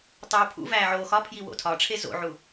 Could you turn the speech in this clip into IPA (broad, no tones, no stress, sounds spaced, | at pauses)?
tˤ oː pʰ ṵ v æː ʕ oː x ɒ pʰ j i w o̰ tʰ ɒ ʈ͡ʂʰ e z o̰ ʕ u